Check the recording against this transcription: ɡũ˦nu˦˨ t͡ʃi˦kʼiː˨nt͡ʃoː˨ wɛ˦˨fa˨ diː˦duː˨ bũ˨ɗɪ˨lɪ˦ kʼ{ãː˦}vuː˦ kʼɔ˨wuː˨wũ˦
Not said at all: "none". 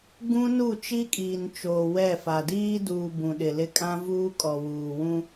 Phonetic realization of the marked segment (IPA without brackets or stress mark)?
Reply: ã˦